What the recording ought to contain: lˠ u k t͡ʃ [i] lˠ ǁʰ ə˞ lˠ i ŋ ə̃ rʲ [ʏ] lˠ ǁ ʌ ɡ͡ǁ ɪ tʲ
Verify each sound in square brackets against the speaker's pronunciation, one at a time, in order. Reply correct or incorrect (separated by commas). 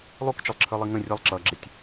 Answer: incorrect, incorrect